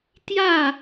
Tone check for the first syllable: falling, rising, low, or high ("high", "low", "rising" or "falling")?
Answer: falling